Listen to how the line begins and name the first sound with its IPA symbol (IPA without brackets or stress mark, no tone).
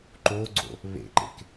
ǃ